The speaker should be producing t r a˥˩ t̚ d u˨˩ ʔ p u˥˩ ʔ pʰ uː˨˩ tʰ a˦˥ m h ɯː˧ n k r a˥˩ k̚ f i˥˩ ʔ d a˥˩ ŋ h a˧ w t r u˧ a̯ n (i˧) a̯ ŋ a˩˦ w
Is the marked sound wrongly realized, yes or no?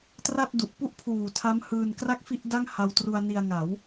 no